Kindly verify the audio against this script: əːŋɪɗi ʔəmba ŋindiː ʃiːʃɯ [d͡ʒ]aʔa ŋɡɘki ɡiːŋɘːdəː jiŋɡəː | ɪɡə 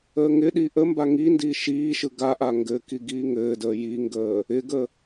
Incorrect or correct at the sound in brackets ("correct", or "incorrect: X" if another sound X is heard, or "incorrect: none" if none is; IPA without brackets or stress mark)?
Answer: incorrect: ɡ